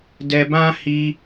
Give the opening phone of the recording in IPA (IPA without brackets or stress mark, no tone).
d